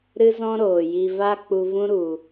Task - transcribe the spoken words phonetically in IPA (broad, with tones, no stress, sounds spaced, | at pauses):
ɾ ɨ˦ z ɔ̃˦ ɾ oː˨ j i˧ v a˦ k͡p u˧ v ũ˦ ɾ u˨